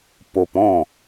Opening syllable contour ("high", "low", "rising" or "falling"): high